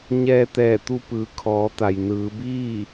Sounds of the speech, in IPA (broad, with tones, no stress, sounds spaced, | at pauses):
ɲ ɛː˧ t̪ ɛː˧˩ t̪ u˧ p ɯː˩ kʰ ɔː˩˧ t̪ a˩ j n ɯː˩˧ b iː˥˨